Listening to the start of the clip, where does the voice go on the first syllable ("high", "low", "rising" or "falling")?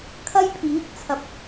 high